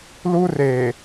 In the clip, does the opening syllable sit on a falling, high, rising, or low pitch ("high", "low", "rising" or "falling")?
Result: high